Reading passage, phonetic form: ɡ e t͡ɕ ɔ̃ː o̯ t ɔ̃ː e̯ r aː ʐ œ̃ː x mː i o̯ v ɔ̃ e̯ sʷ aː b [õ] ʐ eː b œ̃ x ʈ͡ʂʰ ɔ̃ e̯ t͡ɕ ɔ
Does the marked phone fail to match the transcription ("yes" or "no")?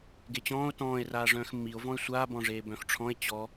yes